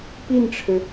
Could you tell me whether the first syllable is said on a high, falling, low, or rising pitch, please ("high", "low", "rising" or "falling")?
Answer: falling